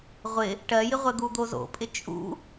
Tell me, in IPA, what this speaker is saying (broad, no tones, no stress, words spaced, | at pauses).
ʁʷɪ | ʈɜjɪʁʷɜ d̪ud̪ozo̰pʼɪ t͡ʃʼṵ